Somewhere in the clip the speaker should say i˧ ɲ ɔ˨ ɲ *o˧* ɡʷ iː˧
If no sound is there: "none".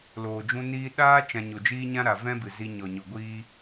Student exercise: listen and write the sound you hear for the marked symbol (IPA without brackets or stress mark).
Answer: o˨